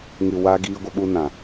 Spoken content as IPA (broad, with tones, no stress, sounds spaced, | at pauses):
ŋ ɨ˨ w a˧ ɡ iː˧ ɡʷ ə˧ ɓ u˧ n ã˨